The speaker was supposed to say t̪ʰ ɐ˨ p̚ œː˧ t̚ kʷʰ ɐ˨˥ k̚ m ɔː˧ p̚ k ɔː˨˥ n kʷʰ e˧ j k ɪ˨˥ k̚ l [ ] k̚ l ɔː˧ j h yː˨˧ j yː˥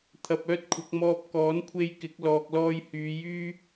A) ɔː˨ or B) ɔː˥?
A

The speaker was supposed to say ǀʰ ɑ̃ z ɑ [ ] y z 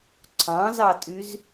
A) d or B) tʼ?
B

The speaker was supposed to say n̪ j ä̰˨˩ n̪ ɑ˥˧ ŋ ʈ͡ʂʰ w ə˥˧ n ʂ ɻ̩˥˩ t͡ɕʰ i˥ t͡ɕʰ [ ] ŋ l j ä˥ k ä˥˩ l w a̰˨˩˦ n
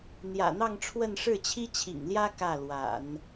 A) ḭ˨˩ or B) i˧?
A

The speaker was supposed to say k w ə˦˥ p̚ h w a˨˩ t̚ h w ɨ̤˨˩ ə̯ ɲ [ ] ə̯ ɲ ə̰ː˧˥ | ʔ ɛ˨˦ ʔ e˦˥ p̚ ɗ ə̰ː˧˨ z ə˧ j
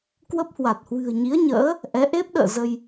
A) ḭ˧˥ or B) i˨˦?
B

